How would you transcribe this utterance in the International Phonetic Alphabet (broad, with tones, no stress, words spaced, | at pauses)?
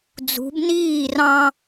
d͡zṳ˨˦bniː˥˨rɑ̃˦